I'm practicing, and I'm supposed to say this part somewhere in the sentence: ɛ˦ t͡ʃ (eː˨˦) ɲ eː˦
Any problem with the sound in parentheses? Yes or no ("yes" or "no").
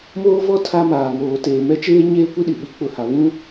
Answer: yes